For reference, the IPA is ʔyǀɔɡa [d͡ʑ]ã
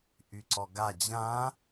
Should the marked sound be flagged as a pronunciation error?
no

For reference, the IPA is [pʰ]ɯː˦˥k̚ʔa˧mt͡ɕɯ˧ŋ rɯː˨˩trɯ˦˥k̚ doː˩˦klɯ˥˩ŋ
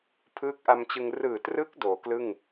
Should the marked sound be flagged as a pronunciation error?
no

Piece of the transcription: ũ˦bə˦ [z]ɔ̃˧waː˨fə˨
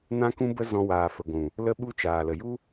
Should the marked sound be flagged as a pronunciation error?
no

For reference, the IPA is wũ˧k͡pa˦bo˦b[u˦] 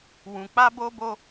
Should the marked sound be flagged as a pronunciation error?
yes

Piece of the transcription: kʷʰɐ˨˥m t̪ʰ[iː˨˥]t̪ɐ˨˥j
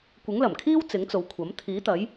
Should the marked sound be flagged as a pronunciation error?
no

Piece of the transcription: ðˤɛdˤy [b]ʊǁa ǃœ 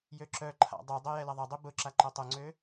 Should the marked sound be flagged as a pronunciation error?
no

